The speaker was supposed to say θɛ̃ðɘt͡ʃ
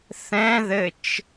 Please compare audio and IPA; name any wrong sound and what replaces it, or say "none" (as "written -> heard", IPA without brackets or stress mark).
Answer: none